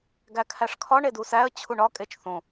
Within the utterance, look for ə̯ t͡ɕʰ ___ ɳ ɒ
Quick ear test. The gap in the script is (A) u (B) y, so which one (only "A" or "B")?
A